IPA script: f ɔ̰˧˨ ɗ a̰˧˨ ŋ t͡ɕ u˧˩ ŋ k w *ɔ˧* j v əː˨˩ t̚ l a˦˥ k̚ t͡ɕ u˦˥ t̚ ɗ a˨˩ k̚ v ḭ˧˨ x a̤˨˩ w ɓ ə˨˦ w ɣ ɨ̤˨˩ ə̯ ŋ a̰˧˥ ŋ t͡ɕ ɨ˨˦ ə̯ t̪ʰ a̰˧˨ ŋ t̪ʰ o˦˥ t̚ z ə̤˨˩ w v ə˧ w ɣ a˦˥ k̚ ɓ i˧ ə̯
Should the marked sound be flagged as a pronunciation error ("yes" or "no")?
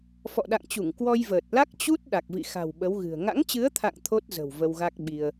no